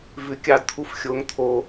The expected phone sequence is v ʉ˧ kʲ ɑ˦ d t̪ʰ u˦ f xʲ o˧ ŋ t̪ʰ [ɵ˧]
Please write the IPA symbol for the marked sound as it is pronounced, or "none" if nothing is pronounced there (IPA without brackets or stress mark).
o˧